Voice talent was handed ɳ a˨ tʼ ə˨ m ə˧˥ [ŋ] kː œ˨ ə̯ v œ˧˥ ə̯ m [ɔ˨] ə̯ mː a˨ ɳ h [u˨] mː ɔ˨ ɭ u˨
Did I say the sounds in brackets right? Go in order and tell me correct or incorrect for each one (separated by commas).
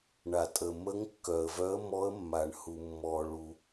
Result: correct, incorrect, correct